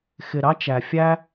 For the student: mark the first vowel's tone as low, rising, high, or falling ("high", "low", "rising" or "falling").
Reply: low